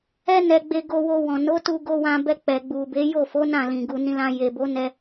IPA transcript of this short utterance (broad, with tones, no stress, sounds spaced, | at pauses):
ɛ˦ n ɛ˧ ɡ͡b e˧ ɡ o˧ w o˧ w ɔ̃˨ n o˨˦ t u˧ ɡ o˧ w ã˧ b ɛ˧ k͡p ɛ˨ ɡ͡b u˨ b e˨˦ j o˦˨ f o˨˦ n ã˦˨ l ĩ˨ ɡ u˨ n ĩ˧ l ã˧ j e˨ b o˨˦ n ɛ˧